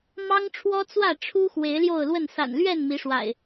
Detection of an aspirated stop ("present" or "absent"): present